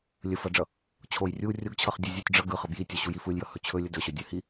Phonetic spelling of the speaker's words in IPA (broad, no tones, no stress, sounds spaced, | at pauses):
lʲ ə f ʌ ɖ͡ʐ ʌ | t͡ɕʰ o j rʲ u rʲ o ɡ t͡ɕʰ ʌ χ dʲ ɯ zʲ ɯ tʲ ɖ͡ʐ ʌ ɡ ɯ χ ʌ b j i tʲ o ɕ u j i f ɯ lʲ j ʌ h ɵ t͡ɕʰ ɵ lʲ ə d ɵ ɕ ɵ dʲ ɵ h i